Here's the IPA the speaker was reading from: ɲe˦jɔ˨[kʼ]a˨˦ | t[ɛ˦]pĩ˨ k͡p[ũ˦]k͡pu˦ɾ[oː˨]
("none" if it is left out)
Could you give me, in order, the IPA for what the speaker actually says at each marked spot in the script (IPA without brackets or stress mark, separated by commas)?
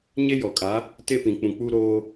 kʼ, e˦, ũ˨, oː˦